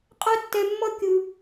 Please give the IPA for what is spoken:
qʼa˦tːɛ˧mːʌ˦ kʲɯ˧

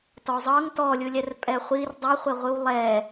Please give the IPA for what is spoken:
tɔzˤɤŋ tɔlʲɯlʲɛr pʼɛχʷir dˤeχʷeʁʷɯw lˠɛ

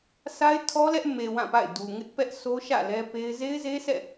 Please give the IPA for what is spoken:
sʰa˦ɪ̯tʰɔ˦lɛ˦ʔ me˨ wã˦˨pa̰˦˨ɪ̯ du˨ŋɪ˦ʔpɛ˦ʔ sʰo˦ʃä̰˦˨ lɛ˦pe˦ɪ̯ ze˦ɪ̯ze˦sʰɛ̰˦˨

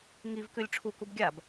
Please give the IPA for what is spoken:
ŋivkʉlʲ ʈ͡ʂʰukub ɡʲab

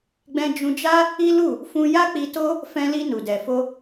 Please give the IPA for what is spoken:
ɡ͡bɛ̃˧d͡ʒũ˧d͡ʒa˦ | i˦lu˦˨ | fũ˧ja˦k͡pi˧to˦ | fɛ̃˧li˧ nu˨dɛ˨ fo˧

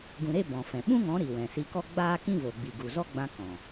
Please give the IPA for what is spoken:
ɡũ˧ɾe˦ bɔ̃˨ fɛ̃˨ ɓũ˦ŋɔ̃˨˦ ɾi˨wɛ̃˨si˧kɔ˦ ɡ͡baː˦kĩ˦vo˨ɡ͡bi˨ ɡu˨zɔ˦ɡ͡bã˧ kɔ̃˨

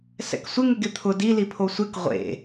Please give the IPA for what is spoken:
sɛ̰ksʷɪ ŋɪɡɪt̪ʰʊ di lipʰosʷek ʁʷḛ

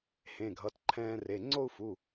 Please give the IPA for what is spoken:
hẽ˩˧˩ɡʱʌ˩˧˩tǃʰɛ̃ː˧re˩˧˩ ŋ͡ǀo˥˧u̯fu˩˧˩

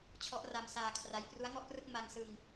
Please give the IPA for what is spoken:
t͡ɕʰɔ˦˥ʔra˧msaː˧kʰra˦˥j pru˦˥a̯ŋɔ˥˩ʔprɯ˥˩k̚ ma˧ŋ sɯ˧ŋ

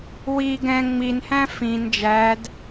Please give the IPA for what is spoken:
wi ɡɛ̃ ŋ͡minhæ̃ fĩn d͡ʒæd

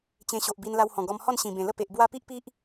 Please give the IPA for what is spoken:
t͡ɕẽ˧ɕo˨ʔbi˧n la˧whɔ̃˨˩ɡɔ˧mhɔ˥˧n ɕĩ˨˩bẽ˨˩lə˥˧ pe˨ʔ bwa˦ pi˦ʔpi˦ʔ

